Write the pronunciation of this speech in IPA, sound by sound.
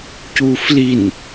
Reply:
c uː f l i n

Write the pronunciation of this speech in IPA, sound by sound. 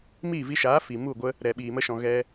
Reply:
m iː˦˨ v i˧ ʃ aː˨˦ f i˨ m u˦˨ ɡʷ ə˦ | ɾ ɛ˨ ɓ iː˨ m ə˧ ʃ ɔ̃˨ ɣ ɛ˧

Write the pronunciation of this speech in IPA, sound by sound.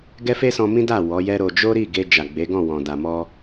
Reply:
ɡ ɛ˦ f e˦ s ɔ̃˧ m ĩ˦ d a˦˨ w ɔ˨˦ j ɛ˦ ɾ o˧ d͡ʒ o˦ ɾ i˦˨ ɡ e˧ d͡ʒ a˨ ɡ͡b e˨˦ ɡ ɔ̃˦˨ w ɔ̃˨ d a˨ m ɔ˧

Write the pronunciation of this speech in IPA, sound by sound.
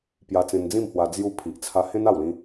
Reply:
p j a˧ t͡s ẽ˧ n d͡z ĩ˥˧ m h w a˧ d͡z j u˧ pʰ i˨ ʔ t͡sʰ a˧ h ẽ˦ n a˥˧ w l ĩ˦

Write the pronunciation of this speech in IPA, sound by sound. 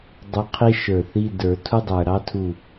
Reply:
dˤ u˧˥ qʰ i˥ ʃ ə˞˧˩ θ i˧˥˧ d ə˞˧˩˧ tʰ u˥ dˤ ə˞˧˩ ɾ ɑ˧˥ tʰ u˧˩

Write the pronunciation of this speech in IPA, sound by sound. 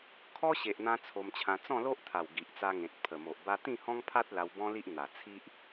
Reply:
kʰ ɔ˦ ɕ e˨ ʔ n̪ ã˧ t͡sʰ o˧ m t͡ɕʰ ã˧ t͡s ɔ̃˥˧ l o˦ ʔ t̪ʰ a˨˩ w ɡ i˨ ʔ t͡s a˧ ŋ ẽ˨ t̚ pʰ ə˨˩ m o˨ ʔ b a˦ t̪ ĩ˥˧ h ɔ̃˦ ŋ pʰ a˦ t̚ l a˧ w b ɔ̃˦ l i˦ ʔ n̪ a˨˩ t͡sʰ i˦ ʔ

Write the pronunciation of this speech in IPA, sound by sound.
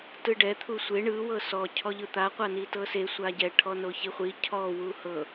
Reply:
t ɯ ɖ ɛ t̪ʰ u sʷ e ɳ ɯ w ɤ s ɔ cʰ ɔ ʎ ɯ t̪ a qʷ a n i t ɤ s e sʷ a ɟ ɛ ʈʰ ɔ n o ç i χʷ i cʰ ɔ w u h ɤ

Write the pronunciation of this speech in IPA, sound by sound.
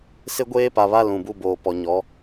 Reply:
s ɪ˦ ɡʷ eː˦ p a˨ β a˦ l ũ˨ b u˦ b oː˨ p ɔ˨ ɲ ɔ˨˦

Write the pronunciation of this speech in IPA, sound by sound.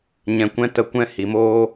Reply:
ɲ ɛ̃˧ kʷ ɛ̃˦ t ə˧ kʷ ɛ̃˦ h i˨ m oː˦

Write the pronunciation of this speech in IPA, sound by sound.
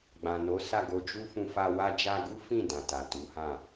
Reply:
ɡ͡b ã˨ n o˨˦ s a˦˨ ɡ o˧ d͡ʒ u˧ f ũ˧ f a˧ w a˧ d͡ʒ a˧ ɡ u˦ f ĩ˦˨ d ã˨ t a˨ t u˨˦ h ã˦˨

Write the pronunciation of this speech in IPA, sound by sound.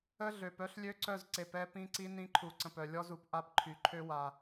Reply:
ə˦ ɮ ø˨ p œ˦ ɬ lʲ ø˦ ǀ œ˦˨ z ǀ e˨ p ɛ˦ p ĩ˦ ǀ i˦ n ĩ˦ ǃʰ u˨ ǀ ə̃˨ p œ˨ lʲ ɔ˦ z u˨ p ʔ a˦ p ǃʰ y˨ ǃʰ ø˦ w a˨

